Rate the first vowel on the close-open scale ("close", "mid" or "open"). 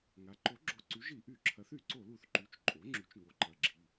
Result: open